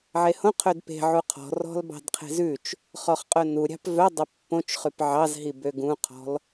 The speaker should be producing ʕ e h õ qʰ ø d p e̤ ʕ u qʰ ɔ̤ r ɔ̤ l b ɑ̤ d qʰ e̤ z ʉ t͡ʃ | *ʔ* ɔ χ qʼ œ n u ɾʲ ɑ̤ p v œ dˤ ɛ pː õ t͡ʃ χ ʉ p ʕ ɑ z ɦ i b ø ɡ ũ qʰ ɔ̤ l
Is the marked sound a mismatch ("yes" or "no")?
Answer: yes